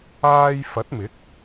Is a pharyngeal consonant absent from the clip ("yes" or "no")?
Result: yes